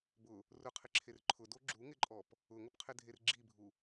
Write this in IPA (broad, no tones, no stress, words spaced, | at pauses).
bʊ | rʊqʰɪǁʰer ǃʰʊdo ɡ͡ǁuŋɪǃʼɔp | ʊŋʊpqʰɪdʱer ɡ͡ǁibʱu